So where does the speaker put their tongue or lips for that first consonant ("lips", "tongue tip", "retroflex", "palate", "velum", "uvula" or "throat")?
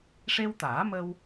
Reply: retroflex